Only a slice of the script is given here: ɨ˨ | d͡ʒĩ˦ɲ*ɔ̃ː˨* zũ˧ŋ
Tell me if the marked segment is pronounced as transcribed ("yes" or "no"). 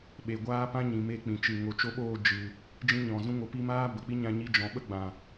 no